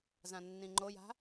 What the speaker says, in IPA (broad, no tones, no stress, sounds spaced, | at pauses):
z ã nː ĩ ŋ͡ǃ o j a̤